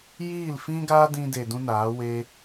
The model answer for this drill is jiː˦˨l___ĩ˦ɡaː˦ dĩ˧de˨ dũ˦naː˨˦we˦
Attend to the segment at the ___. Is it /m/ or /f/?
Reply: f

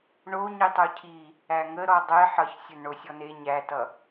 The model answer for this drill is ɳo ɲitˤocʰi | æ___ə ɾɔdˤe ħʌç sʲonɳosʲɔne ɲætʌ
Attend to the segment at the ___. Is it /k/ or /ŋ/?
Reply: ŋ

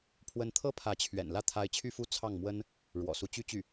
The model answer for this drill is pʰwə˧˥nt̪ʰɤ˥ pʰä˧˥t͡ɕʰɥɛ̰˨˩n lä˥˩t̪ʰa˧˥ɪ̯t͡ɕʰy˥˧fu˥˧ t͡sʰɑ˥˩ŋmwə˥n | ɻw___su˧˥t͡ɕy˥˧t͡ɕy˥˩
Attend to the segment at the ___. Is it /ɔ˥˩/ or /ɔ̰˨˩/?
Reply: ɔ̰˨˩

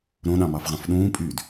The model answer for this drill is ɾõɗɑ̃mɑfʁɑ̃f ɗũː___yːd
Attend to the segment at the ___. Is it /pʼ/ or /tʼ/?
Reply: pʼ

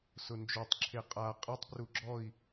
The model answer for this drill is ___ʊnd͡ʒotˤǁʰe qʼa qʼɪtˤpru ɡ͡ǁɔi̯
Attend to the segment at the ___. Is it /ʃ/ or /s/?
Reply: s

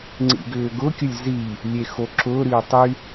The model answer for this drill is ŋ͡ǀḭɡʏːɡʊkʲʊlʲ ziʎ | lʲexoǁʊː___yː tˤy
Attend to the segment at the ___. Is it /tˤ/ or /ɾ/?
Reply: ɾ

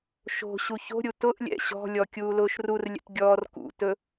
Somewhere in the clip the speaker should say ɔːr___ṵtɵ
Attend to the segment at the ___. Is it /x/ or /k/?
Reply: k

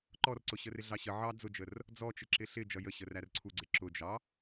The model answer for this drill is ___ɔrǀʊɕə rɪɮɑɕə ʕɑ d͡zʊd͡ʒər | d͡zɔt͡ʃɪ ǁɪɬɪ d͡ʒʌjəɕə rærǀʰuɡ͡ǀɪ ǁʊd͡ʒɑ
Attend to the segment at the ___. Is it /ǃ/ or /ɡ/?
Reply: ǃ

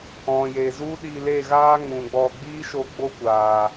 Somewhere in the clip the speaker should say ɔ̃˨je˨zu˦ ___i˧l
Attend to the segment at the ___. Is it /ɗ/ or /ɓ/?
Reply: ɗ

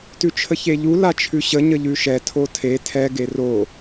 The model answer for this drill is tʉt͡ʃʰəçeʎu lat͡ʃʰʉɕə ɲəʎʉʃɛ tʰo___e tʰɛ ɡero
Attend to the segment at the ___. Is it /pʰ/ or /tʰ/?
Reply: tʰ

